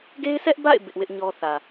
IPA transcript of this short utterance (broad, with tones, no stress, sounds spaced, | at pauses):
ɡ e˦ ɪ̯ sʰ ɛ˦ ʔ b a̰˦˨ ɪ̯ b ɪ˦ ʔ w ɪ˦ ʔ ɲ ɔ˦ θ ä˨